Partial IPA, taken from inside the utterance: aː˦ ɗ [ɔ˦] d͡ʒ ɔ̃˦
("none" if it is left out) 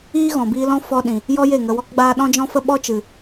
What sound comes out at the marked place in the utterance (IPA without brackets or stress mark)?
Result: ɔ̃˦